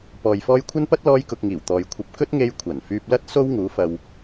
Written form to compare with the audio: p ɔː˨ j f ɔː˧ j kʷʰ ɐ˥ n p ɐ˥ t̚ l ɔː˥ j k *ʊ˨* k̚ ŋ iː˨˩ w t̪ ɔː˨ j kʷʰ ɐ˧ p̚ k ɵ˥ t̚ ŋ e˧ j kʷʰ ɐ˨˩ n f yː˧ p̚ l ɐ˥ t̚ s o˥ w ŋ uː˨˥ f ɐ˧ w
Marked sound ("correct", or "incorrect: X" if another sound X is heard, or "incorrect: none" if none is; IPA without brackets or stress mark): incorrect: ʊ˧